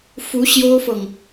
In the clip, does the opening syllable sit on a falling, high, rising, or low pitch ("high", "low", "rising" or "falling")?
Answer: rising